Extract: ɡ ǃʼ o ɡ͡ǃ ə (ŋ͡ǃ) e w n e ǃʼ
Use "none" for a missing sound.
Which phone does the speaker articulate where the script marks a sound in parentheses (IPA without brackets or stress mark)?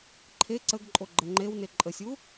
ŋ͡ǃ